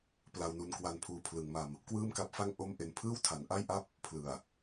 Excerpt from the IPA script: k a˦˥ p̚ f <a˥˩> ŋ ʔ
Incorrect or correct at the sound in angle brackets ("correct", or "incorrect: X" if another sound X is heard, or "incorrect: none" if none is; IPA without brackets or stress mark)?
correct